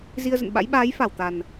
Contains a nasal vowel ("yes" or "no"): no